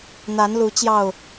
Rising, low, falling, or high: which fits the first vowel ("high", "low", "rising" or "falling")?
rising